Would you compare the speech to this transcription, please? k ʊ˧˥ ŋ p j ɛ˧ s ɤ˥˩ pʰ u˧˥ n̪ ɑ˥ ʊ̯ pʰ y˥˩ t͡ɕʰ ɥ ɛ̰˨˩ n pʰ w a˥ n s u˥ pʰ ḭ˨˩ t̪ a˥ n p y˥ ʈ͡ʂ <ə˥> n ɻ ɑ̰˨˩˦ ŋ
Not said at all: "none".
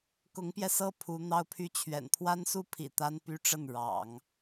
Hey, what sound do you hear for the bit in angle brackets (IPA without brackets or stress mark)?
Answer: ə˥˩